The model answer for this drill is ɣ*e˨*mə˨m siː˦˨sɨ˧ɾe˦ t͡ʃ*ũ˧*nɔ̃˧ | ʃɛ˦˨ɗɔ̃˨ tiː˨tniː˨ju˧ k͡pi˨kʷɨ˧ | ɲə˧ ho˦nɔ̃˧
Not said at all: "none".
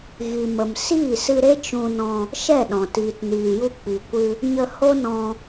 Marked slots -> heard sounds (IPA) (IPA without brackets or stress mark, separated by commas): i˨, ũ˧